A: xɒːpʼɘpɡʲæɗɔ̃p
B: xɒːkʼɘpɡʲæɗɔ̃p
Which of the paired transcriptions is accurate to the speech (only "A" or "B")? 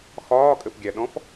B